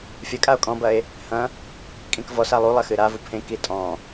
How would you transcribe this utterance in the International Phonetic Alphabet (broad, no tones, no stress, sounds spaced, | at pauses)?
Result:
fʲ ɐ kʼ a o̯ kʼ ɔ̃ b ɐ e̯ | h ɐ̃ | kʼ ĩ k v ɔ s a lˠ u lˠ ɐ x ɨ ɾ a v u pʰ ẽ k i tʼ ɔ̃